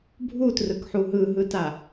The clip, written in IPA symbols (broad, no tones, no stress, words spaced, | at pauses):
bʱutrɯkħu ɦɯɦɯta